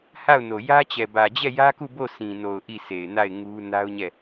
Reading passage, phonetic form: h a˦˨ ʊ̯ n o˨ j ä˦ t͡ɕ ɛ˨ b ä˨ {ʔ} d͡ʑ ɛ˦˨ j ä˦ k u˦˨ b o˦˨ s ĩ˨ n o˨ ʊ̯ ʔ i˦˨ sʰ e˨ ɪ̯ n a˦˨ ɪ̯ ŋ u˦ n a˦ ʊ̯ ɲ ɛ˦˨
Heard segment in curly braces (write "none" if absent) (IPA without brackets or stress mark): none